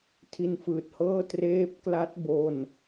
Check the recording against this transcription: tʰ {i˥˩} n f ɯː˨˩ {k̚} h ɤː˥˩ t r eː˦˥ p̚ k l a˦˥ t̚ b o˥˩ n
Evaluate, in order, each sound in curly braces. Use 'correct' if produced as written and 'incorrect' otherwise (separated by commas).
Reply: incorrect, incorrect